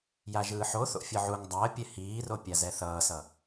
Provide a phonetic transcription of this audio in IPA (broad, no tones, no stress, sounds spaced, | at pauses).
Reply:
j a ʒ ɯː ħ o θ o̰ fʲ ɯ ʕ u ŋ dˤ a ə̯ pʲ ɛ h iː r o pʲ a z ɛ θ ʌː s ʌ